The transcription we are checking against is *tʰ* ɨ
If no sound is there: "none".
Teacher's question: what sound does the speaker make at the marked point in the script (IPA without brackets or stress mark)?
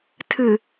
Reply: tʰ